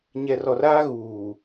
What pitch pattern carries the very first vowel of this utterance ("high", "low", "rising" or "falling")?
low